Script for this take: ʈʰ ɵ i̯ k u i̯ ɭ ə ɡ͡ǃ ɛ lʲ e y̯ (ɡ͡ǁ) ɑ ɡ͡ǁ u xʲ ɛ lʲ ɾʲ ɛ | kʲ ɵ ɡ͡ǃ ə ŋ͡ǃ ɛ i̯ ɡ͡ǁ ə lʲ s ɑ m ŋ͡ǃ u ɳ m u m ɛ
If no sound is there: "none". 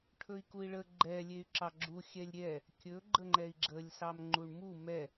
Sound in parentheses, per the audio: ǁ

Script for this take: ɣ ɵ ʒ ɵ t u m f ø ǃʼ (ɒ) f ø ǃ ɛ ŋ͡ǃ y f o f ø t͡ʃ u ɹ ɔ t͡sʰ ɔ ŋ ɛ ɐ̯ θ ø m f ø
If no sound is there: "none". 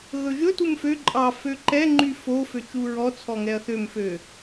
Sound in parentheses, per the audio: ɑ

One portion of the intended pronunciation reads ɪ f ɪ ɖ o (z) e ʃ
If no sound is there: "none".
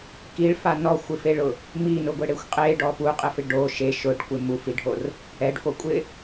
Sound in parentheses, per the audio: ʃ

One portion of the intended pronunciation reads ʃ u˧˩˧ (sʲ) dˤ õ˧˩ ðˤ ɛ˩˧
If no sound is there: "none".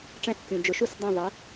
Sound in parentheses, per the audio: s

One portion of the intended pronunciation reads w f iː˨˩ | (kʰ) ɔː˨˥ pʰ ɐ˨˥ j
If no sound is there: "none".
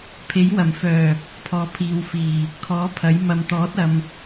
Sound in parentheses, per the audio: kʰ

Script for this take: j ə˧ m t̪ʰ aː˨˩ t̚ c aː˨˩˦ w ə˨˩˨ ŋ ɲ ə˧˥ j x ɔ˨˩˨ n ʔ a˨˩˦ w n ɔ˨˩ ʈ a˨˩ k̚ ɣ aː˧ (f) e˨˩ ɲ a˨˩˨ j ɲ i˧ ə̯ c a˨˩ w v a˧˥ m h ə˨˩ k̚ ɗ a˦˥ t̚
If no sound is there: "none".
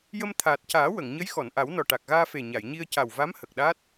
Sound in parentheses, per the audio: f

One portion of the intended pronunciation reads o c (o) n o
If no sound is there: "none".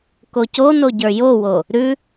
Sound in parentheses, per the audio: o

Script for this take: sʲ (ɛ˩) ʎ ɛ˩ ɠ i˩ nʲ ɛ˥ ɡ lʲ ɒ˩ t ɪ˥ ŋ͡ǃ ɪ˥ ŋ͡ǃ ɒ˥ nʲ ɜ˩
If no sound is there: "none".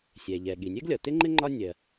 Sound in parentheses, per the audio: ɛ˩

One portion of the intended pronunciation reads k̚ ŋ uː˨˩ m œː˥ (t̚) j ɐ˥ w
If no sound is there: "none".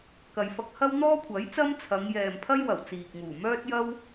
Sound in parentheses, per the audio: t̚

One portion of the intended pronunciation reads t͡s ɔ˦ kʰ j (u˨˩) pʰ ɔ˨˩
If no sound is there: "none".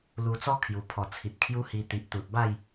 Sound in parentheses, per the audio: u˨˩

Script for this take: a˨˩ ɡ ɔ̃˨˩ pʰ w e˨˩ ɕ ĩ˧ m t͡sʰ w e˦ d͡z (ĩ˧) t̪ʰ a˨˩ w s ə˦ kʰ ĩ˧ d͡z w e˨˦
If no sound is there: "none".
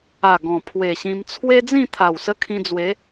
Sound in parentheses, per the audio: ĩ˥˧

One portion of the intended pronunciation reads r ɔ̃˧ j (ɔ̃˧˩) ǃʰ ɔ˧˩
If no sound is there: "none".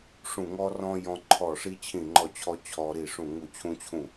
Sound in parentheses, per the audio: ɔ̃˧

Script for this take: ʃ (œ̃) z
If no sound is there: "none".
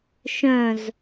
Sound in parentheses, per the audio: œ̃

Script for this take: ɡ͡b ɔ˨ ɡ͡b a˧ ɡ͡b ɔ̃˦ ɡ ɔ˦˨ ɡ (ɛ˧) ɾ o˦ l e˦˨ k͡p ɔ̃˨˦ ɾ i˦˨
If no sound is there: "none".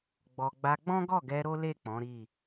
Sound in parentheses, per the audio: ɛ˧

